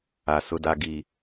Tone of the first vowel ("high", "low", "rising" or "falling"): low